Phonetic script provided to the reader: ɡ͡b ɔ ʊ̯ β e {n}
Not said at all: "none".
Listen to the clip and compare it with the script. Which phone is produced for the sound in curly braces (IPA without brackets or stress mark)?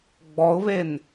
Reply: n